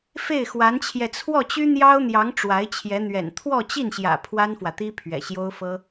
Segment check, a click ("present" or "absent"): absent